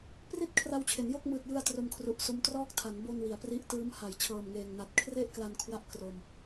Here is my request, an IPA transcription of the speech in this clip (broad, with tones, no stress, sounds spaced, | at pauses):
p r i˥˩ t̚ kʰ r a˧ w t͡ɕʰ e˩˦ n j o˥˩ k̚ m ɯː˨˩ t̚ j ɯ˧ a̯ t r o˧ m kʰ r u˨˩ ʔ s o˦˥ m t r ɔː˥˩ k̚ tʰ a˩˦ n b o˧ n w i˩˦ a̯ p r i˦˥ ʔ t ɯː˦˥ m h a˨˩ j t͡ɕʰ ɤː˨˩ m ŋ eː˨˩ ŋ n a˨˩ t̚ kʰ r e˥˩ ʔ k l a˧ n kʰ w a˦˥ ʔ k r o˧ m